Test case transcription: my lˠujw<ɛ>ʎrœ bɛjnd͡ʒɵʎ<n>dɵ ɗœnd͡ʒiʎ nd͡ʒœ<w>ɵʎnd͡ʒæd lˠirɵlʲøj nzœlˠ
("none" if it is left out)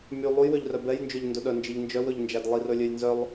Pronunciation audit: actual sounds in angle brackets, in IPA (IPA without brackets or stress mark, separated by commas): ø, n, w